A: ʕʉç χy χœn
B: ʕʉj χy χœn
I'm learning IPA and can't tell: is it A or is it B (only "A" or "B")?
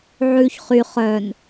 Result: A